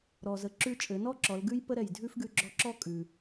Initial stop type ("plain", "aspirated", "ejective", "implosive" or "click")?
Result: click